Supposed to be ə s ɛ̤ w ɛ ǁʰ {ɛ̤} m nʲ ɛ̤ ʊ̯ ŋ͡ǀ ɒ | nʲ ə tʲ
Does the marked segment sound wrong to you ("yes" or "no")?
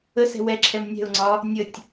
yes